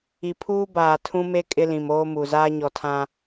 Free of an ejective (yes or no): no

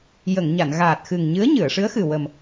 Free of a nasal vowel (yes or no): yes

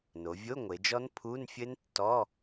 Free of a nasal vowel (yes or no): yes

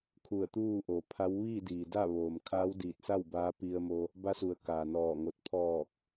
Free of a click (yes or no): yes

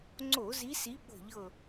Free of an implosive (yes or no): no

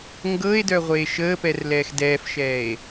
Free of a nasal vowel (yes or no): yes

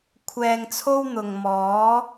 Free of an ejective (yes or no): yes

